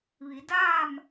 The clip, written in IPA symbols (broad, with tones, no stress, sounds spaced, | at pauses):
ʋ i˩˧ d aː˥˨ m